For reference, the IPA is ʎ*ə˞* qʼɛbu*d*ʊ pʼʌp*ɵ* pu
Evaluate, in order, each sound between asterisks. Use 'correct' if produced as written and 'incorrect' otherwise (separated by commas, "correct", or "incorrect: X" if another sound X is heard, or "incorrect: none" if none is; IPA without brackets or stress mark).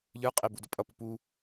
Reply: correct, correct, incorrect: ʊ